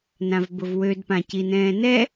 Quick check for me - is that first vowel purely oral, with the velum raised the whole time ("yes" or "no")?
no